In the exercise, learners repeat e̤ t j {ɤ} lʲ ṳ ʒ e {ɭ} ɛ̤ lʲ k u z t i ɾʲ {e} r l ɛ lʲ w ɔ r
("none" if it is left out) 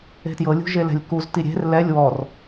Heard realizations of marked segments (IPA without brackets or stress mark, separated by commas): ɤ, l, e̤